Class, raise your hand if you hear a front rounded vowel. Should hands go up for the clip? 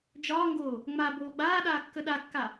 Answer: no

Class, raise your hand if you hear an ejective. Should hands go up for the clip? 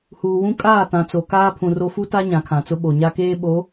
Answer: yes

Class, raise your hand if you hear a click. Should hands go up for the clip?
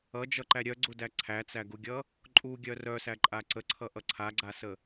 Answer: yes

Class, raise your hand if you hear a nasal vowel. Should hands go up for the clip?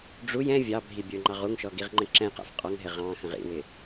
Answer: yes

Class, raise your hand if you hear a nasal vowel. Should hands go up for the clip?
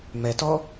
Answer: no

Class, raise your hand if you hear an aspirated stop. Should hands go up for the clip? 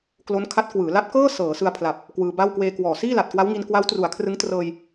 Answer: yes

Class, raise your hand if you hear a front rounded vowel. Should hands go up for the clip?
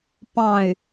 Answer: yes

